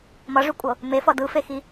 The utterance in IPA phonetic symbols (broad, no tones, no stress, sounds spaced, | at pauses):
m ʌ ʐ y kʷʼ ɤ | m e f ʌ d ɯ f e x i